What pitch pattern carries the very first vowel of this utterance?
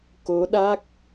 rising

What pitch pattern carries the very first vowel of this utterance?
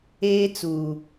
high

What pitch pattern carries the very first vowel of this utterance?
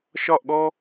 falling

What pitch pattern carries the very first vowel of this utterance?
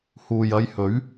low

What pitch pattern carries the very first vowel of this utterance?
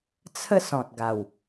falling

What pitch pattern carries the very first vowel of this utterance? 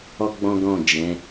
high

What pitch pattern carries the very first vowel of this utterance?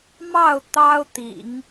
falling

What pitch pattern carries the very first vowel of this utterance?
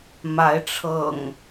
rising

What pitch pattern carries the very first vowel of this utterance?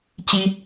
high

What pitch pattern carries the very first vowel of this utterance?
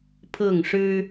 falling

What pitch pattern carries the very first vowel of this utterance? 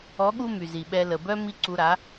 rising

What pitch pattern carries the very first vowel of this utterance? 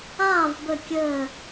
falling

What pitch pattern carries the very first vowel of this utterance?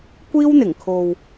high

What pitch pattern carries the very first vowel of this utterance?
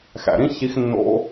low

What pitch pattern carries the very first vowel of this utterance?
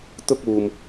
high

